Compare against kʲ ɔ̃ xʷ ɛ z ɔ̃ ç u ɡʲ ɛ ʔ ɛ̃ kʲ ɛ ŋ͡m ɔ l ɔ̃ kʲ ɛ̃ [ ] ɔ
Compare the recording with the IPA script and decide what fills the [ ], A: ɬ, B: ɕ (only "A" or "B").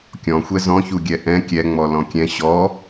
B